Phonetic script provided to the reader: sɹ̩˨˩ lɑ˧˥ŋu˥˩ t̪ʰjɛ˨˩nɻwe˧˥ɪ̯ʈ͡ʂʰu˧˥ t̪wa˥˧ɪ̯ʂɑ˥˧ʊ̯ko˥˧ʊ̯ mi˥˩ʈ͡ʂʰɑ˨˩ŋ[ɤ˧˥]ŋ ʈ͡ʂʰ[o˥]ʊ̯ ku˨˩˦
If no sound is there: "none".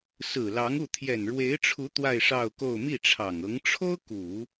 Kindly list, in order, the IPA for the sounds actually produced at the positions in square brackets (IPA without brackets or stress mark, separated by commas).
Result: ɤ˧˥, o˥